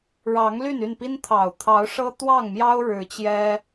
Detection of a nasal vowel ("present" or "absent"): absent